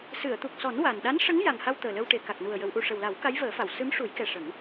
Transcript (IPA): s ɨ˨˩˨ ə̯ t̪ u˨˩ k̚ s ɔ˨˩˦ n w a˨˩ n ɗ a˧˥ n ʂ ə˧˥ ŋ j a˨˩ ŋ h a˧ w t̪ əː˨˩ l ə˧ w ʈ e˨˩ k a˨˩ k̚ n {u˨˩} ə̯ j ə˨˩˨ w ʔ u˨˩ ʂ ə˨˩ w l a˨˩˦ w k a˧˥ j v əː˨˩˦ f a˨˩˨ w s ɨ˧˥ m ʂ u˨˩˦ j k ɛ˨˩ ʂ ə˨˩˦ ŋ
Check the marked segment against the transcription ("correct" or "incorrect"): correct